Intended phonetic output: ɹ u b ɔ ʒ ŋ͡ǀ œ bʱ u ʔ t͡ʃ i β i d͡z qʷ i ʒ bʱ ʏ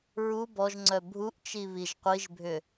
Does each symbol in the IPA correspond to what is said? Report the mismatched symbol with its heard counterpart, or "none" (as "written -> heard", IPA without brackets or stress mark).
d͡z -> ʒ